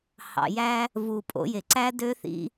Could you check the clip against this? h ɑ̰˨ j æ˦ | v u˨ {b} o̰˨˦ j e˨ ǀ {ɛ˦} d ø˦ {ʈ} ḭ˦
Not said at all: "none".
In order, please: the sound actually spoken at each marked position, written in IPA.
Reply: pʼ, æ˦, θ

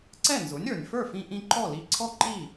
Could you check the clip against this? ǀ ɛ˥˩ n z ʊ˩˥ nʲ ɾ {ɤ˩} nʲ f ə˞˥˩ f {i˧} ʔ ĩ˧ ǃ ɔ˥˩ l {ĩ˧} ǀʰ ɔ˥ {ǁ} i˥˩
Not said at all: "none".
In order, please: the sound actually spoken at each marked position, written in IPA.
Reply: ə˞˩, ĩ˧, i˧, ǃ

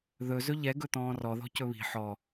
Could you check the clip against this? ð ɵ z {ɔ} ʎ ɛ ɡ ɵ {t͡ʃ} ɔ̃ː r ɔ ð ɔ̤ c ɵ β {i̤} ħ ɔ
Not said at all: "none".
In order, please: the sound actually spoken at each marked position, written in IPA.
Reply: ɵ, t̪, i̤

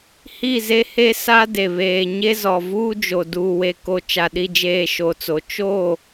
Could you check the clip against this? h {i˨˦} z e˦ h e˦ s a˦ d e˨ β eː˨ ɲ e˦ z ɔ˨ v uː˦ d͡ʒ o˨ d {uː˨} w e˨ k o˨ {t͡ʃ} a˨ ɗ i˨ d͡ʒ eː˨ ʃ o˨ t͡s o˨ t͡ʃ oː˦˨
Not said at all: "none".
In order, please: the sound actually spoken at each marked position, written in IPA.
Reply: i˦˨, uː˨, t͡ʃ

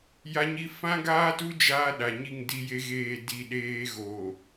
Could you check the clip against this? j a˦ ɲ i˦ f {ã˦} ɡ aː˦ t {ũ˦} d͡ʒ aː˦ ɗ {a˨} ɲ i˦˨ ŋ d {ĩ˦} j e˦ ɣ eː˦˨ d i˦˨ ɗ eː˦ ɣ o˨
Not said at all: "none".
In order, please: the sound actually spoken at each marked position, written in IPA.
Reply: ã˦, u˦, a˨, i˦

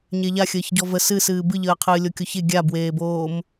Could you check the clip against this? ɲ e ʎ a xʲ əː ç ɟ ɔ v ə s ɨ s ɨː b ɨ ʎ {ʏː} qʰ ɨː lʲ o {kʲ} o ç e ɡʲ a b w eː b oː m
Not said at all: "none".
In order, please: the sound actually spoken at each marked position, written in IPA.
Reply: əː, kʲ

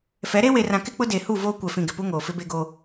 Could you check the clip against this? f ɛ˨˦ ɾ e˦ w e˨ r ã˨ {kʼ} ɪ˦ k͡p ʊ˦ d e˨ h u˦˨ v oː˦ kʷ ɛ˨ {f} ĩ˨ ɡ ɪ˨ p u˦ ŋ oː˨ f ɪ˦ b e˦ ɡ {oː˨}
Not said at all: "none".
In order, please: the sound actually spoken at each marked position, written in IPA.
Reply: k, f, oː˦

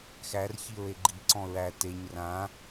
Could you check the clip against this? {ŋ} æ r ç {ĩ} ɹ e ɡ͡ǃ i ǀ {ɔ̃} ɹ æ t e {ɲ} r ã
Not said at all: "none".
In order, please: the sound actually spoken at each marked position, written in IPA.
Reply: x, i, ɔ̃, ɲ

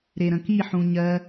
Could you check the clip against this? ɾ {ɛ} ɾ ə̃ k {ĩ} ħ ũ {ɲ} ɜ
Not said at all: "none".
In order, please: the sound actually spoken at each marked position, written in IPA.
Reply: e, i, ɲ

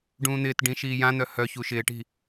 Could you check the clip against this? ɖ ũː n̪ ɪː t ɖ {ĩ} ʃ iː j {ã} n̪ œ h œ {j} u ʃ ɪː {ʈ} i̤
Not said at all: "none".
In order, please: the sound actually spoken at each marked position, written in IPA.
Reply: ĩ, ã, ç, ʈ

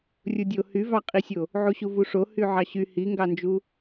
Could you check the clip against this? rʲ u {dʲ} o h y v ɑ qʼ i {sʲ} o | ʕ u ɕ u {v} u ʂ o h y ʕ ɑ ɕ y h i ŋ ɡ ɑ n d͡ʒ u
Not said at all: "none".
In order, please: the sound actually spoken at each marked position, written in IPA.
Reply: dʲ, sʲ, v

